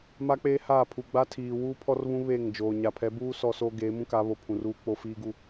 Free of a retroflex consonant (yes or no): yes